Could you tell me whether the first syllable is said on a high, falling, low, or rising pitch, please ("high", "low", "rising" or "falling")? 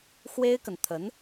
high